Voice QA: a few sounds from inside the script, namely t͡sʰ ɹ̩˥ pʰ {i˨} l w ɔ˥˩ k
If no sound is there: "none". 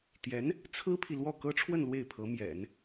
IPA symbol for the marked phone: i˨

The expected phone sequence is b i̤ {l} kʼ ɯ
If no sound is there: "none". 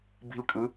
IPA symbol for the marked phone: l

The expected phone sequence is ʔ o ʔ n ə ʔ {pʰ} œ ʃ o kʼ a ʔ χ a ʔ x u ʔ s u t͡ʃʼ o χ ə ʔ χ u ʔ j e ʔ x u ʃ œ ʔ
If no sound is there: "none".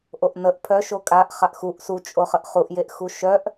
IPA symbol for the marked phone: pʰ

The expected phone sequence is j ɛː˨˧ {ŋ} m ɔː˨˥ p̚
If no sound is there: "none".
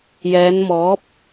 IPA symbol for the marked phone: n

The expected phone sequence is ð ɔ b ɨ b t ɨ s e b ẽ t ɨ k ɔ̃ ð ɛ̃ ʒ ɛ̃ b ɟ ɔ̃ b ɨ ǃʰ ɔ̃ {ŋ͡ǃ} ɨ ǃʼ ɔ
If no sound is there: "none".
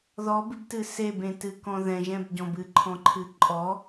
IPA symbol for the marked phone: ǃʰ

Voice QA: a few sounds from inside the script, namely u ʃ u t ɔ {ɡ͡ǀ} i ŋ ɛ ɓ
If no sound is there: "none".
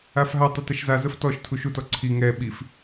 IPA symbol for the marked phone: ǀʰ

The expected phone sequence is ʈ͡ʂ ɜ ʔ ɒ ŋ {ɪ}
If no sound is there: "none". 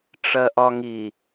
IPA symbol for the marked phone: i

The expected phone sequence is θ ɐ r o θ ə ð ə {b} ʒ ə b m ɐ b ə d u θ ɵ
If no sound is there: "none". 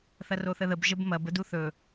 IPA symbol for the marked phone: b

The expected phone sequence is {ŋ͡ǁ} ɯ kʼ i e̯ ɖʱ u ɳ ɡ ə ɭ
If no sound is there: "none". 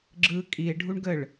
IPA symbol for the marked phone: ɡ͡ǁ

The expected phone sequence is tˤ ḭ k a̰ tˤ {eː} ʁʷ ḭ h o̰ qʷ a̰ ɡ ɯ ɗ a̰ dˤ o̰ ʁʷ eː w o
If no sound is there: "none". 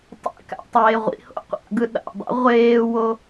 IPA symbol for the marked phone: eː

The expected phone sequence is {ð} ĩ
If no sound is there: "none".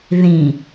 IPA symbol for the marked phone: ð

